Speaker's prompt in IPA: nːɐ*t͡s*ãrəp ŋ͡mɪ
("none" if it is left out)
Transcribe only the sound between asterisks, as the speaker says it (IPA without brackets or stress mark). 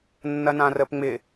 n